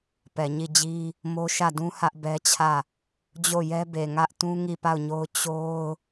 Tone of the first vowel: low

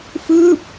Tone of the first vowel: falling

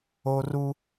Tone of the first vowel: high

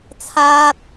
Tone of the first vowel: high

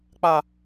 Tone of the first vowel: high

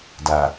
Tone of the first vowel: low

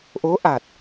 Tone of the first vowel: rising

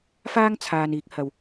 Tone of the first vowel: high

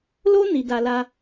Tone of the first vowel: high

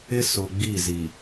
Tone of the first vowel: high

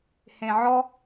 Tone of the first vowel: low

